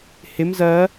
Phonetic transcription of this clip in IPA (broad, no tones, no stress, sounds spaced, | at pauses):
h ɪ m z ɜ